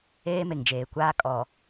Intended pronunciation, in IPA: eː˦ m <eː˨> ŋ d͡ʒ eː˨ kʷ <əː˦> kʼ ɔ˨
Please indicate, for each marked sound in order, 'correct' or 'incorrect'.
incorrect: e˨, incorrect: aː˦

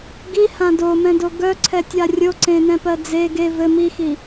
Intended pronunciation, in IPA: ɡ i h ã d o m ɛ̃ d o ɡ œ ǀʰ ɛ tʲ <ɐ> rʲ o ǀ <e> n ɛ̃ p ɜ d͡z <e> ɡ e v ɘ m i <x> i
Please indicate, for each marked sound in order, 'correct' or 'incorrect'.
incorrect: a, incorrect: ẽ, correct, correct

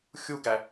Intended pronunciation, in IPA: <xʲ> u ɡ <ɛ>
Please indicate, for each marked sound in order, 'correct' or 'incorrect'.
correct, incorrect: æ

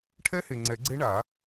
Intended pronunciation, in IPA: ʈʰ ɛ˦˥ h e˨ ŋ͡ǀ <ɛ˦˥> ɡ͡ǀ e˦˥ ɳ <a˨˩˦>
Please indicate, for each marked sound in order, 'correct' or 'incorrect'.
incorrect: ɛ˨˩˦, correct

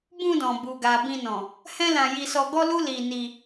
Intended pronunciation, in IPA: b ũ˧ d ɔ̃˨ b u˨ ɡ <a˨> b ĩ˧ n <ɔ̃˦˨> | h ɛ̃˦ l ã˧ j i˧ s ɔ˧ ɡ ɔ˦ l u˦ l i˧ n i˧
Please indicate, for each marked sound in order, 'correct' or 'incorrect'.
correct, incorrect: ɔ̃˨

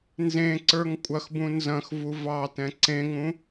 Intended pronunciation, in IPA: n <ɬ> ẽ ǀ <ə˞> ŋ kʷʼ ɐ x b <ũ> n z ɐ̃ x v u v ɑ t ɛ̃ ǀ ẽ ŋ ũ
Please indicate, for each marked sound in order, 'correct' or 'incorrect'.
incorrect: z, correct, correct

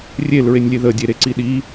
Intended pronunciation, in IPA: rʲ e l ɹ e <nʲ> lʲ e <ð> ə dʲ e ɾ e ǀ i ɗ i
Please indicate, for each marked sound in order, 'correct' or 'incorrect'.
correct, correct

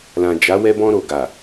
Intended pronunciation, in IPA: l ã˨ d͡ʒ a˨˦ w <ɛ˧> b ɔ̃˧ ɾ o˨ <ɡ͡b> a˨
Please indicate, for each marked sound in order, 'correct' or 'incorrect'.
correct, incorrect: ɡ

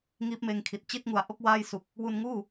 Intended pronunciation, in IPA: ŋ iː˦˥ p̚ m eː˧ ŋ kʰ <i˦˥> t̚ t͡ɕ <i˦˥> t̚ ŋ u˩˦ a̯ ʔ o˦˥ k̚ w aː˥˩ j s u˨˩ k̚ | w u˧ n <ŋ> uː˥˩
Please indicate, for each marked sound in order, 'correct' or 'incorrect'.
incorrect: i˨˩, incorrect: i˥˩, correct

